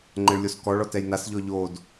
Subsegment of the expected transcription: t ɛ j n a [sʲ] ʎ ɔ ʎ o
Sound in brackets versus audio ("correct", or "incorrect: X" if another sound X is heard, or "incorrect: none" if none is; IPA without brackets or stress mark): incorrect: s